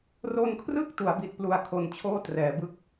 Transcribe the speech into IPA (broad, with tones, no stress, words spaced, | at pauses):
ro˧nkʰrɯ˥˩k̚ tu˩˦a̯bi˨˩t̚ plu˧a̯kʰo˨˩nt͡ɕʰoː˥˩ trɛː˩˦bɯ˥˩k̚